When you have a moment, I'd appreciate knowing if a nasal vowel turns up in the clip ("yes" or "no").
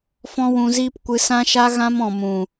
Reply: yes